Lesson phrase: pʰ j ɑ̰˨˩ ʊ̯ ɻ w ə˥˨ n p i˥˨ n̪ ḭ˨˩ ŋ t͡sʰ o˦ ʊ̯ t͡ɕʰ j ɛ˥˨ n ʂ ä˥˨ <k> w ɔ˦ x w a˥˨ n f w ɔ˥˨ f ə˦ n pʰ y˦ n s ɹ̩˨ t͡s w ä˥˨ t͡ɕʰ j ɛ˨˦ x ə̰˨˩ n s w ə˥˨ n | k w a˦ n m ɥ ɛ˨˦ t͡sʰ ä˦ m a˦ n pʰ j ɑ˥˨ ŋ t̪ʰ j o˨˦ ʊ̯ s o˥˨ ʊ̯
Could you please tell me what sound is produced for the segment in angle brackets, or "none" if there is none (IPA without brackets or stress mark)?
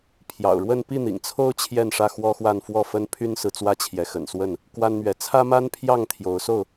x